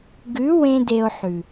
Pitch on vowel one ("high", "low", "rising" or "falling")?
rising